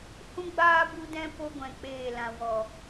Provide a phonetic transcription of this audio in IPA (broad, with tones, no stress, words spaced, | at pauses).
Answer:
hũ˦ɡ͡baː˦ bu˦dɛ̃˦ po˦ɡʷɛ̃˨k͡peː˦˨lã˧ wɔ˨